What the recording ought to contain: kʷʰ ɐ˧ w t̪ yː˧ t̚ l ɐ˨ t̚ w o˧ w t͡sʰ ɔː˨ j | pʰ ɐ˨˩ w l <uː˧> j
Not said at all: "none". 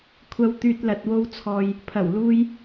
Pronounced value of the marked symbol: uː˧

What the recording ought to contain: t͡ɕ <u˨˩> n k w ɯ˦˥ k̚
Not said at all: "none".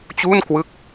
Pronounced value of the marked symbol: u˥˩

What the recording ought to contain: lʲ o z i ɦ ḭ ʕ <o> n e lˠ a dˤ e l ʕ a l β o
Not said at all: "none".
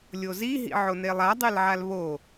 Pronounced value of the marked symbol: o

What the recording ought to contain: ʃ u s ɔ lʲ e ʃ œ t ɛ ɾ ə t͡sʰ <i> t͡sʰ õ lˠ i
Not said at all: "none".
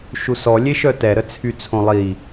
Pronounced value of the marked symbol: y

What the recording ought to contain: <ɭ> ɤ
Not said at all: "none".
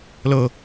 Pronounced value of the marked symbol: l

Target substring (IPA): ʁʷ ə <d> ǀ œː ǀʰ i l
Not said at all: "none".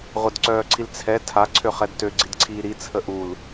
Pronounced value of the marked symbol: d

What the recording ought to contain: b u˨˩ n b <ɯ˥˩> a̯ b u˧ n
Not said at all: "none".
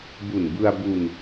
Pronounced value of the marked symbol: ɯ˧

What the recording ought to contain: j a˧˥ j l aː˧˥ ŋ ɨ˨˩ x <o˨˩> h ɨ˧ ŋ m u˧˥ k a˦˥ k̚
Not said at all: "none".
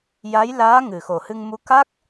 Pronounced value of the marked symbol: o˨˩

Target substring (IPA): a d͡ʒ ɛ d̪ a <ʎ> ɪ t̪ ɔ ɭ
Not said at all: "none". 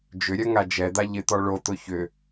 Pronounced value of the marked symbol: ʎ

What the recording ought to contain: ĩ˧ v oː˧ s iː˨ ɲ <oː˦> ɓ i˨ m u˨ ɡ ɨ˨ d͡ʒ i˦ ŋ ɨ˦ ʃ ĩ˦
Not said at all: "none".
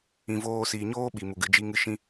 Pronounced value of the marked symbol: oː˦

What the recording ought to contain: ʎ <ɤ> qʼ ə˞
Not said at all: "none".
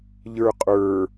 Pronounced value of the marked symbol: ə˞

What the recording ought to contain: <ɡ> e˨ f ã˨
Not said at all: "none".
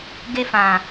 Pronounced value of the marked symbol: ɡ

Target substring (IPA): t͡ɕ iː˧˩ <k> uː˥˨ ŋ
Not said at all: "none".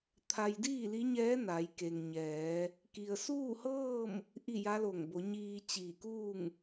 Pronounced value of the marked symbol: k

